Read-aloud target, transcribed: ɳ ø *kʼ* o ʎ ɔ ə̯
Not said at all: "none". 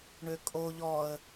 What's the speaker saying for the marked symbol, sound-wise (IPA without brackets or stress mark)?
kʼ